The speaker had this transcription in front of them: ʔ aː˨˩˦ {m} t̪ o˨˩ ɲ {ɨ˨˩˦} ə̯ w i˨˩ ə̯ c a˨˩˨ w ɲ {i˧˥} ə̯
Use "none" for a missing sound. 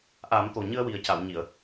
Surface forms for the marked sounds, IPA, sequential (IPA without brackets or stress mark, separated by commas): m, ɨ˧, i˨˩˨